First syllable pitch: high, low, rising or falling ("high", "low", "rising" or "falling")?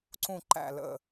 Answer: low